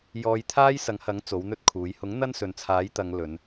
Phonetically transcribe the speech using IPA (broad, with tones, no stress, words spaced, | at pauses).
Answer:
jɔː˨˧jt̪ʰaː˥j sɐ˨˥ŋhɐ˨˥ŋ t͡so˨˥wn̪ɵ˥t̚kʰuː˨˥j hʊ˨˥ŋ n̪ɐ˥nsɵ˨nt͡sʰaː˨˥jt̪ɐ˨˧ŋ lɵ˨˧n